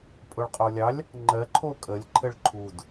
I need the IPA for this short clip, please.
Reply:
pʼ ʊ ɭ qʼ o lʲ ɑ lʲ | ŋ͡ǃ ɜ ǃʰ o kʼ ə lʲ ǃʰ ɘ ɭ ǃʰ u d

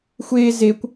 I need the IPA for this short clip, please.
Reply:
xʷ e z e kʷ

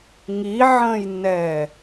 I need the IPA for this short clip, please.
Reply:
ŋ i ʕ ə̃ː j nː ɛː

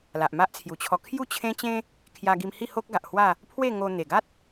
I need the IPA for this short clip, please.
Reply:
l a˨ ʔ m a˦ ʔ t͡sʰ j u˨˩ t͡ɕʰ ɔ˧ kʰ j u˥˧ t͡ɕʰ ẽ˦ t͡ɕ ẽ˦ | kʰ j a˧ ɡ i˧ m h i˥˧ h o˦ k̚ ɡ a˨ ʔ h w a˥˧ | pʰ w e˥˧ ŋ o˧ n̪ e˨˩ ɡ a˦ t̚

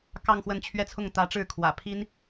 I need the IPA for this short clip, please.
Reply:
k ɑ˥˧ ŋ x w ə˥˩ n t͡ɕʰ ɥ ɛ˥ t͡sʰ ʊ˥˩ ŋ t̪ ä˧˥ ʈ͡ʂ ɻ̩˥˩ kʰ w ä̰˨˩ pʰ i˥ n

